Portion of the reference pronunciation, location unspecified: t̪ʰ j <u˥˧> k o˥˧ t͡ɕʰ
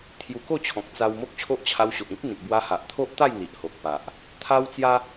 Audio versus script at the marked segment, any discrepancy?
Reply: yes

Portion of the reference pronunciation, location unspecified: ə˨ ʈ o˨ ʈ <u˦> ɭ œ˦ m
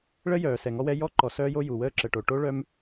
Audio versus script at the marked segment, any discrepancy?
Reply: yes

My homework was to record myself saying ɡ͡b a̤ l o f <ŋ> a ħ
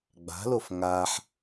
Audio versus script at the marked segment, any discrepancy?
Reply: no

